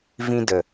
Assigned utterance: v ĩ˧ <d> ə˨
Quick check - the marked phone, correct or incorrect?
correct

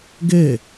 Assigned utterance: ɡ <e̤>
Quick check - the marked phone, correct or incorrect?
incorrect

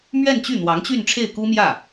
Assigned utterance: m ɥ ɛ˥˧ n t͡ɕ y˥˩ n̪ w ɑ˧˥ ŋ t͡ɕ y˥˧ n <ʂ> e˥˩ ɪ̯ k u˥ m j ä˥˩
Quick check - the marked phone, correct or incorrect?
incorrect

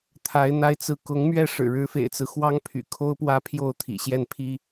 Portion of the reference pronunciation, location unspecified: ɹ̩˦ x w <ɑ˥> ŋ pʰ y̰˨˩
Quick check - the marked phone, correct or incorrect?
correct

